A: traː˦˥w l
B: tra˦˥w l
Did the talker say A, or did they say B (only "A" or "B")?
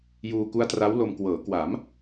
B